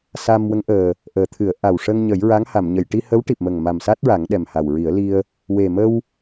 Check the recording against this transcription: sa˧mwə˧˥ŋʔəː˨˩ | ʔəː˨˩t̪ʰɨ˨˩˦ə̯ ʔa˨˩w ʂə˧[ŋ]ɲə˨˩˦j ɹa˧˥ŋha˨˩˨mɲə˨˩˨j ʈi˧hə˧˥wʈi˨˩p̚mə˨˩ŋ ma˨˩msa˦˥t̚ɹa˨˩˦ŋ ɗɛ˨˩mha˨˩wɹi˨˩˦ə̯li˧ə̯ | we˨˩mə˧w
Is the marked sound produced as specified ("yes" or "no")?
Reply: yes